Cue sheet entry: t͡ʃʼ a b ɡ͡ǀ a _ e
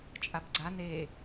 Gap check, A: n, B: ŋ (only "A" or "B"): A